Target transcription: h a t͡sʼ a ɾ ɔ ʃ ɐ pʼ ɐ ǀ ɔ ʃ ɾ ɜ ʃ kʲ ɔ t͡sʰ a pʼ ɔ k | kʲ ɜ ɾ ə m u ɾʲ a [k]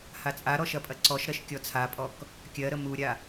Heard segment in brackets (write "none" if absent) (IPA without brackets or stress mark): none